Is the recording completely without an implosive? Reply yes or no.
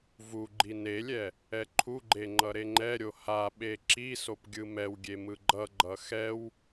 no